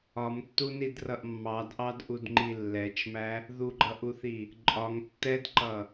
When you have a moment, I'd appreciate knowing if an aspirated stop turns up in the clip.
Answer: no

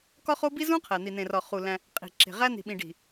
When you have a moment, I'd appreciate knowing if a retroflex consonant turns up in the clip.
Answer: yes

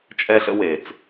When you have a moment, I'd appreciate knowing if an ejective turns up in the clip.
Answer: yes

